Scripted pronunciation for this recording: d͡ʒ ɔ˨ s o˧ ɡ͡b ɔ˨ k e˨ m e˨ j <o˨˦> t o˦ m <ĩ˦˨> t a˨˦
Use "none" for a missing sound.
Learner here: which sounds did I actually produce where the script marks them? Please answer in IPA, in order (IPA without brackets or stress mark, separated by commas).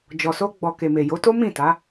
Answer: o˨˦, ĩ˦˨